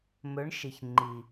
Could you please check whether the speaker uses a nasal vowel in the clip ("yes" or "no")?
no